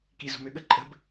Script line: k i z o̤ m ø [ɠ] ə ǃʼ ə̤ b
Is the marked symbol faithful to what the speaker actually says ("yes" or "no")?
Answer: yes